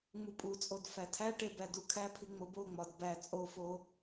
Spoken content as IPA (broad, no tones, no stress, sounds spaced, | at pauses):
ŋ͡m u pʼ u t͡sʼ o d f æ tʰ æ ʈ e b æ d u kʰ æ pʰ i ŋ͡m o b o ŋ͡m ɒ d b æ t͡sʼ o f o